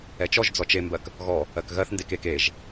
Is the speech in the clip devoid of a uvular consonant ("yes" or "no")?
yes